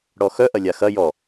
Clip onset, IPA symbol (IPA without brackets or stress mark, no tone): ɽ